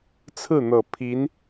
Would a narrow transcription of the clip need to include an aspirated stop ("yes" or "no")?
yes